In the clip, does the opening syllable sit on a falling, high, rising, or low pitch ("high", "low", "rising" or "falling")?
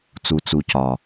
low